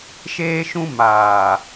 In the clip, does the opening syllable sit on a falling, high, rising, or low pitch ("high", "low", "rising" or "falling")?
high